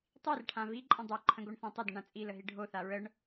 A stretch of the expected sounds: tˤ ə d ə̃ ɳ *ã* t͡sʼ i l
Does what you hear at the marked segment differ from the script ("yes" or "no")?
no